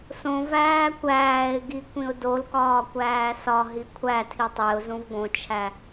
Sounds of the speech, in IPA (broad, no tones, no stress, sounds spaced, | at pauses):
s õ v æː kʷ æː ɪ̯ ɡ i kʷ ĩ ʊ̯ d o l k ɒː kʷ æː s ɒ ɦ i kʷʰ æ tʰ i tˤ e ʊ̯ z ũ v ɡ õ t͡ʃʰ æ